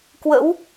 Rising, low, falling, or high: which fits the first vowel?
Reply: rising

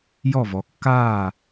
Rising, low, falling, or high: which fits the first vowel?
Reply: falling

